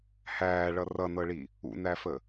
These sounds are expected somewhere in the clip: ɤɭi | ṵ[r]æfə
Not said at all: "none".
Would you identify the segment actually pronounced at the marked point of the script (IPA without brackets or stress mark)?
n